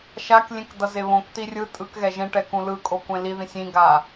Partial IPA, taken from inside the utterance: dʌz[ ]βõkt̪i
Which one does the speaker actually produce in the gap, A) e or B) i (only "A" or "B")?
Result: A